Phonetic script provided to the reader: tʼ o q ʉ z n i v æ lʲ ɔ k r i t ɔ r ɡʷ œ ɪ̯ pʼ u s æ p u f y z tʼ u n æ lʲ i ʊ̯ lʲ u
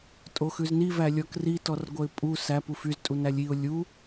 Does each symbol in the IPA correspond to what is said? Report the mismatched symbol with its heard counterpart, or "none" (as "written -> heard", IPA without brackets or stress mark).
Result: q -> x